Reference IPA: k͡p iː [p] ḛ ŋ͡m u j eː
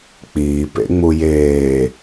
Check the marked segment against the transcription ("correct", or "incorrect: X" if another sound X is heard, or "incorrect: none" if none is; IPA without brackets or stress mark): correct